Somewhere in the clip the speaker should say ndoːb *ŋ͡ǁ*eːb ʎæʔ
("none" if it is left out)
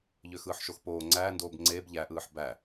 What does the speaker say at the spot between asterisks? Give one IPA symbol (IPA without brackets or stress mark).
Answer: ŋ͡ǀ